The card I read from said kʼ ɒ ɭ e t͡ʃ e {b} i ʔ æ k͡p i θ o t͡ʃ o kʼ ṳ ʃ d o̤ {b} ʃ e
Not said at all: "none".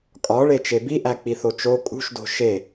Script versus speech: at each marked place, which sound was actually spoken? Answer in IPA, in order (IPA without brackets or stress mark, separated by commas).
b, none